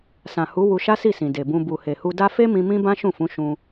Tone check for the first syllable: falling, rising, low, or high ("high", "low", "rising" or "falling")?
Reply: low